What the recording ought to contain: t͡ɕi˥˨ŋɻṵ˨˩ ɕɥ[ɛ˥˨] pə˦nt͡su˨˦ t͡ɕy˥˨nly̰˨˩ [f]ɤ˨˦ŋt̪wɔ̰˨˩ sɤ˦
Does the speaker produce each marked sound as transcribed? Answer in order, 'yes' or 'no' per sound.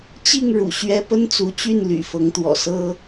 no, yes

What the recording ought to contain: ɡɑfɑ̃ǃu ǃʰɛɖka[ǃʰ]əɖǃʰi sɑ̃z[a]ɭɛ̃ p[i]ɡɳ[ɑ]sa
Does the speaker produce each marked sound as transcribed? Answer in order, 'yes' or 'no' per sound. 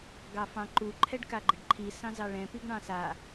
no, no, yes, no

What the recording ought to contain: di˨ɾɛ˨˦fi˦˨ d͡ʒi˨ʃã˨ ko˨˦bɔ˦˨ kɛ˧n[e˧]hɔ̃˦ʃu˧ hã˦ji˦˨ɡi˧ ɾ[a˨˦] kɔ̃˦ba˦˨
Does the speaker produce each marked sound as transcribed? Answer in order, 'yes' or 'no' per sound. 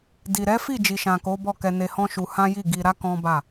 yes, no

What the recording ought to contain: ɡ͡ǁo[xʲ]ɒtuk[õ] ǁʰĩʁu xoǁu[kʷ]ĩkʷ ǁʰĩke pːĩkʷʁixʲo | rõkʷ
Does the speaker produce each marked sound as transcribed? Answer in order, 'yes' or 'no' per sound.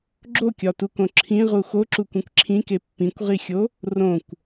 no, yes, yes

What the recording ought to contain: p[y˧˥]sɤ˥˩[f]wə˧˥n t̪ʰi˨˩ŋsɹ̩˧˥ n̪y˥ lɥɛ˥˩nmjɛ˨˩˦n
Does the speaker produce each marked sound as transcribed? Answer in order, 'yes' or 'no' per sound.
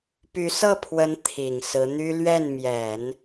yes, no

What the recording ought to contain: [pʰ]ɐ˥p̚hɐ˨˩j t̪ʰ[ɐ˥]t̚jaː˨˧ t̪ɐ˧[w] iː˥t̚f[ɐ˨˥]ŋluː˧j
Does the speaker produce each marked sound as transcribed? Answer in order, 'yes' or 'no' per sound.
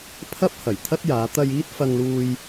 yes, yes, no, no

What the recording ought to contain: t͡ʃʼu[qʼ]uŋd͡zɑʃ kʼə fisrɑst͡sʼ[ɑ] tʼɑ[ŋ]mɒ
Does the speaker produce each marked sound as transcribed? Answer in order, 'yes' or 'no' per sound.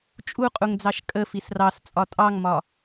yes, no, yes

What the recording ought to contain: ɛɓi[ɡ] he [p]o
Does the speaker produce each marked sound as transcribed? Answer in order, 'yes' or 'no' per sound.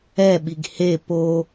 yes, yes

